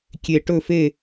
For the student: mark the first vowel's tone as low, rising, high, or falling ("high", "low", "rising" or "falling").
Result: falling